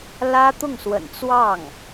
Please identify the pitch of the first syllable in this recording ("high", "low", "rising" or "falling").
high